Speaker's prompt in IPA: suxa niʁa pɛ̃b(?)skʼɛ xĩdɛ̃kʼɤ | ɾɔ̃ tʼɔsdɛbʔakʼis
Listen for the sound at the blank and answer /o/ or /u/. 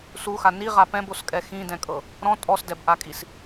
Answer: o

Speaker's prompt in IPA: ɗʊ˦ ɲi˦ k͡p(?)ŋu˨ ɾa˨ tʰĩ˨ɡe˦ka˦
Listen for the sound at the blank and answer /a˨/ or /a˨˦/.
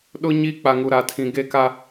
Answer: a˨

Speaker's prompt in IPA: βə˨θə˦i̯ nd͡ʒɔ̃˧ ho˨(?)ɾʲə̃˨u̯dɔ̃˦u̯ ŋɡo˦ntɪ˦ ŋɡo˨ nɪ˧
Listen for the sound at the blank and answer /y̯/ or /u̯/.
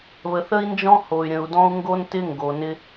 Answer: y̯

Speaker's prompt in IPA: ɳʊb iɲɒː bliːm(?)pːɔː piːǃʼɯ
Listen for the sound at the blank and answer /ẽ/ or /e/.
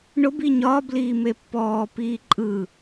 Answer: e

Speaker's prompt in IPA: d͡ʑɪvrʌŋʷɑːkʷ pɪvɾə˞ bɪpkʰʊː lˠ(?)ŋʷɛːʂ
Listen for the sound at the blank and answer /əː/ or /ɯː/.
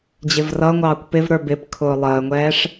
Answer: əː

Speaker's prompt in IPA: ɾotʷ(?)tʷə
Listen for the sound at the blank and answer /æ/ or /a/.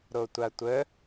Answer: a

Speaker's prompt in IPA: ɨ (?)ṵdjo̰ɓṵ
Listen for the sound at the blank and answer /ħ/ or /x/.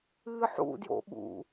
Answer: ħ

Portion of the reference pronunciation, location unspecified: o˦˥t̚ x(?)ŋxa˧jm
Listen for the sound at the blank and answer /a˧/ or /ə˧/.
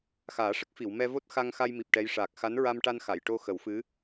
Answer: a˧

